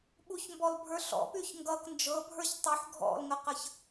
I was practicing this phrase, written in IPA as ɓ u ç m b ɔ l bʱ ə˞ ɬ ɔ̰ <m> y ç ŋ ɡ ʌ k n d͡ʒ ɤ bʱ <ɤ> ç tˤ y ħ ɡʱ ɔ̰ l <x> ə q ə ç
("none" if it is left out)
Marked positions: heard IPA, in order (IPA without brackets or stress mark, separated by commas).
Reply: p, ə˞, ŋ